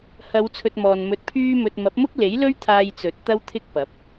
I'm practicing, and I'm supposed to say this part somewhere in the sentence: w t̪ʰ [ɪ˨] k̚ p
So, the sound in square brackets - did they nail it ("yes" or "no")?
no